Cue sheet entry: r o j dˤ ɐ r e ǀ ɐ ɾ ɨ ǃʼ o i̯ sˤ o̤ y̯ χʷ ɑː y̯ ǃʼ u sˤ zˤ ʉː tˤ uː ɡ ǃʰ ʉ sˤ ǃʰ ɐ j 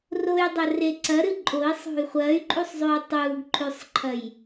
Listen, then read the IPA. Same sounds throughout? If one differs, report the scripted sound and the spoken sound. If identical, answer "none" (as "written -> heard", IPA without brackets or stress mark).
ɑː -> ɐː